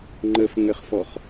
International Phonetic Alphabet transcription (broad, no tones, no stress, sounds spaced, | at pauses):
ŋ͡ǃ ə f ŋ ɘ χ f ɔ χ